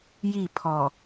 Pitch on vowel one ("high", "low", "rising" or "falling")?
falling